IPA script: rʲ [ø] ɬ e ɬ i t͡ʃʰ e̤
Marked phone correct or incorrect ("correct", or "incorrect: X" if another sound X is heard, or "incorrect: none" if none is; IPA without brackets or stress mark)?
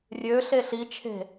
correct